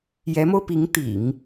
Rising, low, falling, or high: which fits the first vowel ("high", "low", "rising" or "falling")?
rising